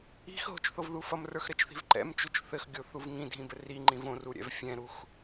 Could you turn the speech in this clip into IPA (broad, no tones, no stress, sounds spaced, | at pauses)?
i̤ x ɦ o̤ t͡ʃ θ o v ð u f ʌ m r ə˞ x ɾ ɘ t͡ʃ θ i̤ v ǃ ɛ̰ m t͡ʃ u t͡ʃ θ ɘ x ɡʲ o θ u v ŋ ĩ dʱ ĩ b ɘ r i ŋ͡ǃ ĩ v õ r u ɾʲ ɛ̰ v fʲ ɛ̃ ɾ u x